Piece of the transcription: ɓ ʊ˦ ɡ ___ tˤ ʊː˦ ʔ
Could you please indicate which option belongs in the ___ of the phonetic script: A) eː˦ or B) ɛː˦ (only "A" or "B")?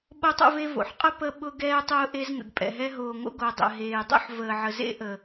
B